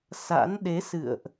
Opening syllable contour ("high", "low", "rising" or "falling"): rising